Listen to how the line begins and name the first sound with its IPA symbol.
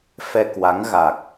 f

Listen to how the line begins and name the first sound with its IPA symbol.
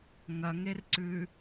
ŋ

